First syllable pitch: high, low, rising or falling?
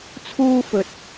high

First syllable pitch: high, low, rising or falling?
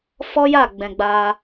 high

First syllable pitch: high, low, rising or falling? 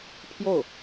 falling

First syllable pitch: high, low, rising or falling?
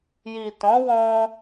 low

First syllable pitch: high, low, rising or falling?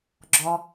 low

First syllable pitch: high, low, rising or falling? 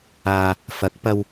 low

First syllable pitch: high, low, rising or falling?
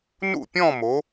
falling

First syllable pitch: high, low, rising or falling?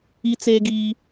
high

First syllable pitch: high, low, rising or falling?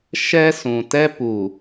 high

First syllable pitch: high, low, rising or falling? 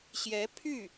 rising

